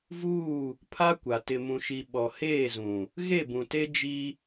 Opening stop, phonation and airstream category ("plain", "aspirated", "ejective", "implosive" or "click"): aspirated